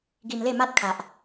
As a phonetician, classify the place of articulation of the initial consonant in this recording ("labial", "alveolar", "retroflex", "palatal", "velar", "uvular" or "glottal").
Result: velar